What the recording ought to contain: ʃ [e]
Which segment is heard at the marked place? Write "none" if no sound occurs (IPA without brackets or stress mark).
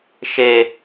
e